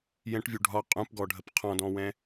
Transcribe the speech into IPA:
jɛ̃ʈvʲu ɖʱɒ qʼũpɡɔɖʱəp qʰɔ̃dɔ̃wɛ̃

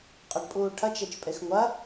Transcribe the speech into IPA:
qʼɐɖpʼuːʈʰɐt͡ʃ et͡ʃpʼexŋʷɐ

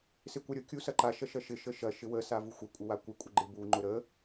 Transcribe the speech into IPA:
sɪkʷɐɾʲʊ kʲusɐǃa ʃɐʃɐʃɪ ʃəʃɐ ʃɪwə savuxʷə kʷʼəwakʷɪ kʷʼɪɡ͡ǃɪ bu ŋ͡ǃʊɾə

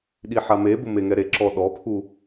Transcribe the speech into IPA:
ɗiħamebʊ meŋɛɾeǁɔ ɗɔpʰu

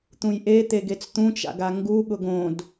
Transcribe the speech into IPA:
t̪ũjʔet̪eɡet͡s t̪ũt͡ʃa̰ɡa ŋɡuɠʊɡ õd

